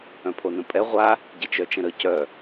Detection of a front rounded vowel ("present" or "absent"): present